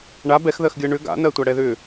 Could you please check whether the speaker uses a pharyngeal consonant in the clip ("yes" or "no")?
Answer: no